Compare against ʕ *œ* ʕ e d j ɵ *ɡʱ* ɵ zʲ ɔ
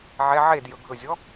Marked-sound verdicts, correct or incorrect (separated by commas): incorrect, correct